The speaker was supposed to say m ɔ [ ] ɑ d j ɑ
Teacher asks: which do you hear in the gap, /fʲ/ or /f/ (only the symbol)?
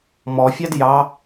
fʲ